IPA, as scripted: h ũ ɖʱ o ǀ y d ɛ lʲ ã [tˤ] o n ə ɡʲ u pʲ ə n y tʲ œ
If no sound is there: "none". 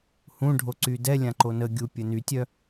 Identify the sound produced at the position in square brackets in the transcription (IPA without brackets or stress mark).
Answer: ǃ